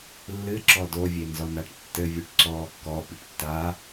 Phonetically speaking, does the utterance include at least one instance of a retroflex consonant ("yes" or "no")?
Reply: yes